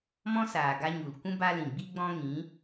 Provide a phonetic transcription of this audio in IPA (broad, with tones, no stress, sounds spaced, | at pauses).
m ɔ̃˦ s aː˨ ɡ a˦ ɲ u˨ l kʷ ũ˦ b a˦ l ĩ˨ ɡ͡b i˦ ɡ͡b ɔ̃˦ ŋ ĩ˨˦